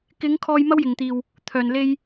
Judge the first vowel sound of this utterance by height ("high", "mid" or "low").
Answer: high